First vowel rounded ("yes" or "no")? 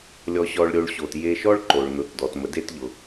yes